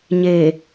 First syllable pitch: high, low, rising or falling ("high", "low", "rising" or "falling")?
low